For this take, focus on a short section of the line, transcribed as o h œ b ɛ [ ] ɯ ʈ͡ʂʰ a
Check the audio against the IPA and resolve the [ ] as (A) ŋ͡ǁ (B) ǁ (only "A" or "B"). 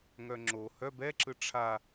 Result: B